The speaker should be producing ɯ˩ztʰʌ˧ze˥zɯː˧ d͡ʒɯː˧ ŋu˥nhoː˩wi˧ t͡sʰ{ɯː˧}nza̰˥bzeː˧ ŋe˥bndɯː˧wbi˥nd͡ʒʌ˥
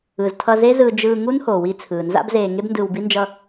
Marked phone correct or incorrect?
incorrect